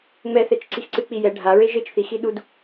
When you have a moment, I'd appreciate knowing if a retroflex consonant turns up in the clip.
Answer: yes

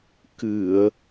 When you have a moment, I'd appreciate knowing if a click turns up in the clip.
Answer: no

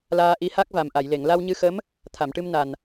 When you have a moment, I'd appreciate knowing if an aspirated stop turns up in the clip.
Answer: yes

